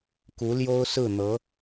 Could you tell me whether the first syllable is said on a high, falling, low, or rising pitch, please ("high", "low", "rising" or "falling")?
rising